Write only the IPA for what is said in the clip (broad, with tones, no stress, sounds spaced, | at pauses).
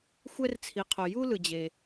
xʷ ɛ˥ r t͡sʰ i˨ qʰ o˨ j u˥ l ɯ˨ d͡ʑ e˨